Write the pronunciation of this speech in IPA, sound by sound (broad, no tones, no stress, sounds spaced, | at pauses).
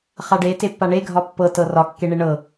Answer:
χ a ɖ e t e pː a ɳ e ɡʱ ɒ pː ɤ t ɤ r ɒ kː e ɳ e ɳ ɤ